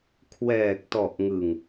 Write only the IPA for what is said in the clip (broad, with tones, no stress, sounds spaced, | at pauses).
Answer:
kʰ w ɛː˨˩ k̚ t ɔ˨˩ ʔ ŋ ɯ˨˩ ŋ